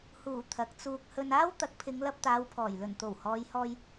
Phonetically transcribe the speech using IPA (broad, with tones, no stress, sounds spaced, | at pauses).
h uː˨˩ t̪ʰ ɐ˨˥ k̚ t͡s uː˧ k̚ h ɵ˧ n aː˥ w t̪ ɐ˨˥ k̚ pʰ ɪ˨˧ ŋ l ɐ˧ p̚ t̪ aː˨˧ w pʰ ɔː˨˩ j l ɵ˨˩ n t̪ o˨˩ w h ɔː˨˧ j h ɔː˧ j